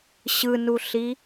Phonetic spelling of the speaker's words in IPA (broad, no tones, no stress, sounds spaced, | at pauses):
ɕ ɯ n u ɬ i